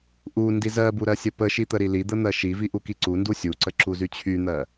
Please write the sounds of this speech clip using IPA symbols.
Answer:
ʔ u n d i z ɜ b u ɾ ɜ sʲ ə p ə ʃ i t̪ ə ɾ i l i d̪ ə n̪ ɜ ʃ i v i ʔ u k i ǀ u n d u sʲ u ǀ ə ǁ u z y t͡ɕʰ y n̪ ɜ

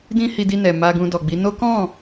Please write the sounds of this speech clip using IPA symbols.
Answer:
d ĩ˦ h i˧ d i˧ n ɛ˨ m a˧ ɡ ũ˧ d ɔ˨ ɡ͡b i˨˦ n o˦ k ɔ̃˦˨

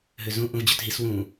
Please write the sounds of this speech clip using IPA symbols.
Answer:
ɦ ø z ũ ʔ ũ v d͡ʑ ɵ t ɦ i s w ũ

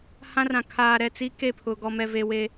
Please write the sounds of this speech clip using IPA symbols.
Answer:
h ã˦ r ã˨ kʰ aː˨ ɾ ɛ˦˨ t͡s i˦ k e˦˨ pʰ ʊ˨ ɡ ɔ˨ m ɛ˨ v e˨ w e˦

